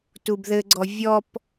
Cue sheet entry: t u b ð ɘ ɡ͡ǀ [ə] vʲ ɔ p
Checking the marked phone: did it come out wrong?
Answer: yes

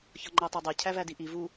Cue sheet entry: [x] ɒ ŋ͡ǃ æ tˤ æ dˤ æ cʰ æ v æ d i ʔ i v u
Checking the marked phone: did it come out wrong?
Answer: yes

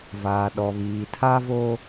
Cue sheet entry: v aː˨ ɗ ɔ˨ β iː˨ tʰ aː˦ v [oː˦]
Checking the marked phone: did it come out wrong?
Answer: no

